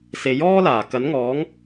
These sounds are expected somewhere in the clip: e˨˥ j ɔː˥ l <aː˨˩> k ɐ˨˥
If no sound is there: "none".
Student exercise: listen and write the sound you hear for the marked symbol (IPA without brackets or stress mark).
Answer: aː˨˩